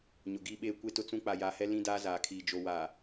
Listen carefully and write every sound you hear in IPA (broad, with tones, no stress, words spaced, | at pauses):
ɲʊ˨ɡiː˦ɓeː˦ kʷe˦tʊ˦t͡sũ˦ k͡pa˨jaː˨hɛ˦ lĩ˦daː˦zaː˨kʰiː˨ d͡ʒo˨waː˨